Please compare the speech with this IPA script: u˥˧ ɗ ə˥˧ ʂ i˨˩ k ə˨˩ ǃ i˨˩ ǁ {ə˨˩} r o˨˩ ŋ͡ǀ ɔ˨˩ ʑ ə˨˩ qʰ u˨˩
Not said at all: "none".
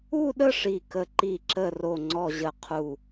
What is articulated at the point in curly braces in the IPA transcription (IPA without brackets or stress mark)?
ə˨˩